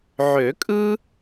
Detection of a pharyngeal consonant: present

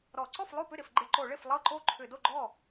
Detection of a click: present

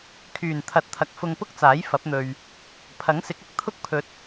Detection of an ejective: absent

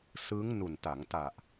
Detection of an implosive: absent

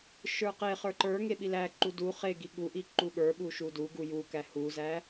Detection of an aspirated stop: absent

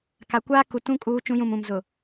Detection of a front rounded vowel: absent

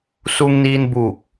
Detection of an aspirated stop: absent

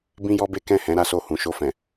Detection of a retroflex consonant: absent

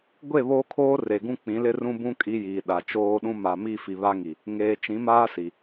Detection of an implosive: present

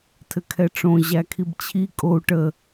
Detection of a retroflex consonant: present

